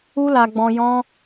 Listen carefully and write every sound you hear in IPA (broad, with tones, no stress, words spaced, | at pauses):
u˦la˧ɡ͡bɔ̃˧ jɔ̃˦